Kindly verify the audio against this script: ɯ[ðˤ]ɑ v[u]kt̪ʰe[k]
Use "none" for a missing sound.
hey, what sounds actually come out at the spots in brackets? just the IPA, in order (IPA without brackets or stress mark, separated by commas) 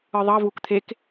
ðˤ, u, k